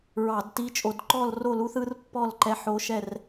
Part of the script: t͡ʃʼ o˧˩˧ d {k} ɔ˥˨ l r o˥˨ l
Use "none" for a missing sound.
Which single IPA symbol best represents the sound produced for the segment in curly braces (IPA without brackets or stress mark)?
ǃ